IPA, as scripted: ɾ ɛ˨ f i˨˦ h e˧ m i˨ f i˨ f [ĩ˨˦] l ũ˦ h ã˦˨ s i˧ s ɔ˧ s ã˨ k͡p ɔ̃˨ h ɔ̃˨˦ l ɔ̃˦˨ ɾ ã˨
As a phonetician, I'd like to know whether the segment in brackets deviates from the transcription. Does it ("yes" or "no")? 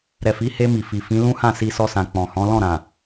no